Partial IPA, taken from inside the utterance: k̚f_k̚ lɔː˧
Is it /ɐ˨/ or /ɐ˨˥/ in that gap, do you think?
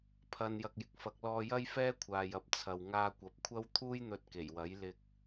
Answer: ɐ˨˥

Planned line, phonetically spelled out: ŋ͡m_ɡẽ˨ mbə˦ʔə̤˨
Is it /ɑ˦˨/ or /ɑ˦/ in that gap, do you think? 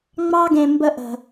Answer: ɑ˦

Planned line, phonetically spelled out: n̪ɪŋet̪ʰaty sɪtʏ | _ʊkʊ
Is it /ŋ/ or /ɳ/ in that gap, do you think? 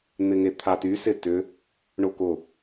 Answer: ɳ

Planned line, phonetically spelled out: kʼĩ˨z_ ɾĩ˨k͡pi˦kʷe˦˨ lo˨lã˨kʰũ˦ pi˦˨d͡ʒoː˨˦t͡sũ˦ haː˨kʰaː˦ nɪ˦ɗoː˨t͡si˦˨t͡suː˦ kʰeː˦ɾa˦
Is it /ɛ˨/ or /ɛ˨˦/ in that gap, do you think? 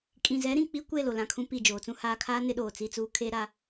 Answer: ɛ˨˦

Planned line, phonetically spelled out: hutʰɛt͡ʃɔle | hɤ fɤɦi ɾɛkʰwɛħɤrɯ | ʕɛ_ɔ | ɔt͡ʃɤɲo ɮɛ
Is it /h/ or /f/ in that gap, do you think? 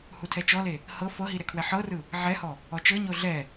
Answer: h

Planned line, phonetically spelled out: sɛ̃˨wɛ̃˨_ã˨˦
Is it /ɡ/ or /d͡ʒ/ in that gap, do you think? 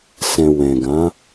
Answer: ɡ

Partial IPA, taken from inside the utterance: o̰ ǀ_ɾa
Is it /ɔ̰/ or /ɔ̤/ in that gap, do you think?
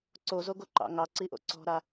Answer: ɔ̤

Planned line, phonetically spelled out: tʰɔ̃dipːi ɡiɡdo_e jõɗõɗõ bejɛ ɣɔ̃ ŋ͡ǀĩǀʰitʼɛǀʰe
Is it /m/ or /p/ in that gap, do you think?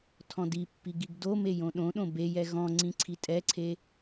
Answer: m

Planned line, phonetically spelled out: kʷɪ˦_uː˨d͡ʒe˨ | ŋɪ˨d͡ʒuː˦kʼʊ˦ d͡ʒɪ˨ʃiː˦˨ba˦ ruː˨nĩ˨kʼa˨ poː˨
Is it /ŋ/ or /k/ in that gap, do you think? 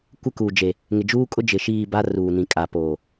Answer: k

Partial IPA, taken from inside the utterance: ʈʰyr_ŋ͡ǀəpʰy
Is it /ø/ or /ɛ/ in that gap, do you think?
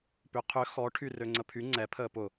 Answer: ø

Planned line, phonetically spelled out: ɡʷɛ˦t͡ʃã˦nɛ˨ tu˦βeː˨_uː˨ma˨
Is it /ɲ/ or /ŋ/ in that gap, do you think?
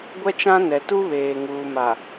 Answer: ŋ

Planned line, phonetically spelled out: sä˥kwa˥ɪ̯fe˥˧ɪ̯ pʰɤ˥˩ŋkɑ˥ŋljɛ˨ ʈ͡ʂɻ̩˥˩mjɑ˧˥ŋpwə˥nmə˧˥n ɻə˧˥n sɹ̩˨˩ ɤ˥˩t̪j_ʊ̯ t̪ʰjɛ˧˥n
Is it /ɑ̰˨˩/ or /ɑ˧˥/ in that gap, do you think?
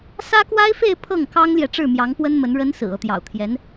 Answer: ɑ̰˨˩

